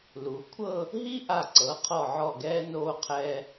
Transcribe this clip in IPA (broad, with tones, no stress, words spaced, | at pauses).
lu˩˧ kʷʰɤ˥˧ | ɦi˥ʔa˧˩ǀɤ˩˧ qʰɔ˧˩ʕɔ˧˩ɡɛː˧ noː˧qʰɛː˧